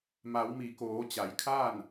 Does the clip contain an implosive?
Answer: no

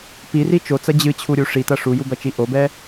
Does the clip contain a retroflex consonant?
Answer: yes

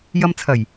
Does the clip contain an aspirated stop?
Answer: yes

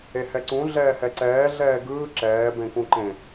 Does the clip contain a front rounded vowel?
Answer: no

